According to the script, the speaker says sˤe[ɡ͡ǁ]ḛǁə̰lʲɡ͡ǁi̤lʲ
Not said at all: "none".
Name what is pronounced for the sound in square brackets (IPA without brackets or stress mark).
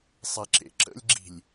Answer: ǁ